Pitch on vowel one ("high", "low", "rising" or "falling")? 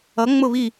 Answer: rising